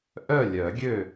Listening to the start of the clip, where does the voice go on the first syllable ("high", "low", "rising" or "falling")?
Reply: falling